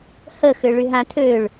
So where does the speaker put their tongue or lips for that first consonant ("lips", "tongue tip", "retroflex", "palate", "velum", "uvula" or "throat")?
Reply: throat